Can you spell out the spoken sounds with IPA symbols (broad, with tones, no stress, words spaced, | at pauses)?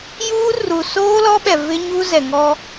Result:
juː˦ru˨ soː˦lɔ˦ɓɛ˨ vɪ˦ɲu˦ zɛ˨ŋɔ˦